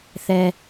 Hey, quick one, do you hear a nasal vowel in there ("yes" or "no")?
no